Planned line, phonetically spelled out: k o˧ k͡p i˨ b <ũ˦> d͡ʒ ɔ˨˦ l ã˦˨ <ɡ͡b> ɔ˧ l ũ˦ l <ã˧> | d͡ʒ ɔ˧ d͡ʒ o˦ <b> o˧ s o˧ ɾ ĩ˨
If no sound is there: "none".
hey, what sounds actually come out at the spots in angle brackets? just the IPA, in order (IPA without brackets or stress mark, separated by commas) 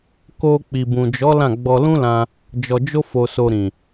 ũ˨, ɡ͡b, ã˧, f